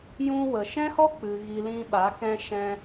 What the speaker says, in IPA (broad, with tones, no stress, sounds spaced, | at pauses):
j ũ˧ w ə˨ ʃ ɛ̃˦ h ɔ˦ k͡p ɨ˨ ɣ i˨ l ĩ˧ ɓ a˨˦ k ɛ̃˧ ʃ ɛ̃˧